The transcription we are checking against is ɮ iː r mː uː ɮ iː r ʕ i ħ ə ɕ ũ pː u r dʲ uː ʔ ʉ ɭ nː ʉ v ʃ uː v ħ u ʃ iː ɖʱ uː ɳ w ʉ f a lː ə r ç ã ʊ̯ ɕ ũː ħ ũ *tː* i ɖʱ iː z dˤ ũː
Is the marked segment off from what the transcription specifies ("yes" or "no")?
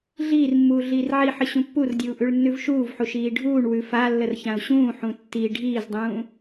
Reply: no